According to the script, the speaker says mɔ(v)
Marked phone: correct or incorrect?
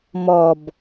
incorrect